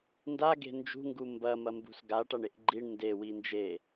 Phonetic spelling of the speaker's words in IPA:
n d a ɡ e̤ n d͡ʒ ṳ ŋ ɡ u m b ɐ m ɐ m b ṳ s ɡ a ʈ a ɳ e ʔ ɡ͡ǃ i ɳ n d e w i n d͡ʒ e

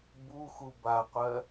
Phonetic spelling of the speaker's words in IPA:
b u x u b a qʷ ɜ

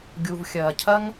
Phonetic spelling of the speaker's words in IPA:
ɡʲ u˩ v xʲ ɐː˩ cʰ ɐ˥ ŋ

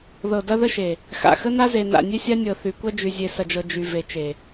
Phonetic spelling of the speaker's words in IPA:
ð ɤ˨ d ɐ˦ ð ə˦ ʃ e˨ | x a̰˨ x ə˦ n a˦ z e˨ n a̰˨ nʲ e˦ sʲ a˦ nʲ ɤ˨ θ y˨ kʷ ɐ˦ d͡ʒ y˨ zʲ e˨ s ɐ˨ d͡ʒ ɤ˨ d͡ʒ y˨ v e˨ t͡ʃ e˨

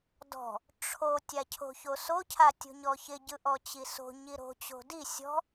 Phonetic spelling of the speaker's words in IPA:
d ɔ̤ | ʈ͡ʂʰ o tʲ a cʰ o̤ ç o s o cʰ a tʲ o̤ ɲ ɔ ç ɪ ɟ ɯ ʔ ɔ t͡ɕ i s o̤ ɲ i ɾ o̤ t͡ɕ o̤ d i sʲ ɔ̤

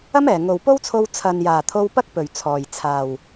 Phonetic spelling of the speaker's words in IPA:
ɐ˥ m ɛː˨˩ ŋ o˨ w p o˥ w t͡sʰ o˧ w t͡sʰ ɐ˨ n j aː˨˩ t̪ʰ o˧ w p ɐ˥ k̚ p ɵ˨˩ ɥ t͡sʰ ɔː˨˩ j t͡sʰ aː˨˩ w

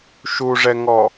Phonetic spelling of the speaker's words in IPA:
ʃ u ʐ ɛ ŋ ɔ

